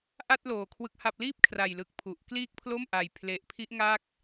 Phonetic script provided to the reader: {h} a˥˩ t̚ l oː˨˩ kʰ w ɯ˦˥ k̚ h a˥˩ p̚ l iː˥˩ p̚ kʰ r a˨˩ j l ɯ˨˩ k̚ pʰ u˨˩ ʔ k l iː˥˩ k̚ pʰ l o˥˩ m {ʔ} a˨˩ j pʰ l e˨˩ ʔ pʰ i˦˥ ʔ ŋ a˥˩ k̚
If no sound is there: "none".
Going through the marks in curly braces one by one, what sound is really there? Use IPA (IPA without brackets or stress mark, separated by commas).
ʔ, ʔ